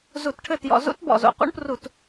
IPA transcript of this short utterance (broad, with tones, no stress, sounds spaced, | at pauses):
z u˧˩˧ t ʈʰ ɘ˥˩ t j ɔ̰˧˩˧ z ṵ˦˥ t b ɔ̰˨˩ z o̰˨˩ q ṵ˦˥ ɳ p r u˧˩˧ t